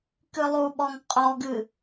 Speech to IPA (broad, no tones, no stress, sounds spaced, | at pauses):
k ɨ lˠ u ɓ ɔ ŋ qʼ ɔ ɡ ɨ